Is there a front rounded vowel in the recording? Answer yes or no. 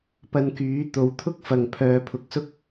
yes